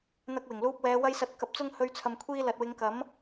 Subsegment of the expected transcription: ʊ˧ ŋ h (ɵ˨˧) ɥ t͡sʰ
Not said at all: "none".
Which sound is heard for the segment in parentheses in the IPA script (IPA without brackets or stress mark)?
ɵ˨˧